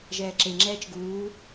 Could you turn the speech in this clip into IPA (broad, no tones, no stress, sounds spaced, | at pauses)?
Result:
ʒ ɛː ǁ e ŋ͡ǁ ɛː t͡ʃ ɡ uː